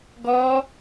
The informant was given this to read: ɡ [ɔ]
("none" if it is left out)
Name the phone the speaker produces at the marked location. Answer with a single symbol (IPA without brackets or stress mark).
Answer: ɔ